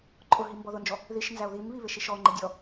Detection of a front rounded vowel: absent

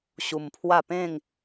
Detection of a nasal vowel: present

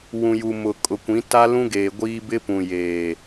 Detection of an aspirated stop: absent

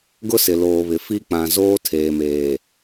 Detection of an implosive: absent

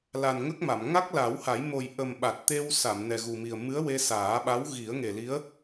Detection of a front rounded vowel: absent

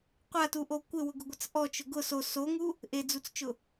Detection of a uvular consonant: present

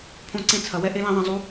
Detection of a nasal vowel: present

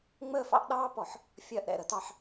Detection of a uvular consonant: absent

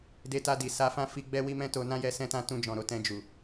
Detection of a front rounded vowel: absent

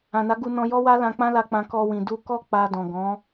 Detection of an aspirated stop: absent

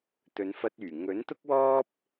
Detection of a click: absent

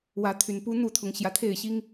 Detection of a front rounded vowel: present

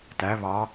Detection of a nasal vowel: absent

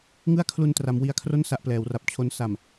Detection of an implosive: absent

